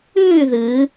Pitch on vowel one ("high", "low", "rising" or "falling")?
falling